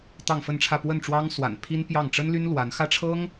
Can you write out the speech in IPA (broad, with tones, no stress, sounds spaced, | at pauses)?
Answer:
t̪ ɑ˥˧ ŋ f ə˥˧ n ʈ͡ʂʰ ä˥˧ p w ə˥˩ n ʈ͡ʂ w ɑ˥ ŋ s w a̰˨˩ n pʰ i˥ n p j ɑ˥˩ ŋ ʈ͡ʂ ə˥ n l y˥ n l w a˧˥ n x ä˥˩ ʈ͡ʂʰ ɤ˥ ŋ